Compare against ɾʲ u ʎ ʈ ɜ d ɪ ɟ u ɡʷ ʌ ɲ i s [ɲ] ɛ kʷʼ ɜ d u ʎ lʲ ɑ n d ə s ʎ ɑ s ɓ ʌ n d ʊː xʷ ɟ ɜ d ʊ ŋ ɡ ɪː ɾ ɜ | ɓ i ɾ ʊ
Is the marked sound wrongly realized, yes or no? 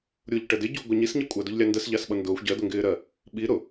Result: no